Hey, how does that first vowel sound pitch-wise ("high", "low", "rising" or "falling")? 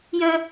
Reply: high